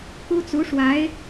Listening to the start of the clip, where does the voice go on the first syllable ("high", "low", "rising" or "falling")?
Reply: high